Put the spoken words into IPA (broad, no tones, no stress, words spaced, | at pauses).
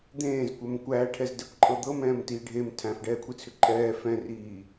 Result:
d̪ẽːzkʷɛm kʷæːʈʰɛzdɛkʷǃʼɤ d̪ɤmɛ̃ːmtiː ɖʱem tʰæ̃fɖɛːkʷʰit͡sʰʏ ǃʼɛː fɛ̃riː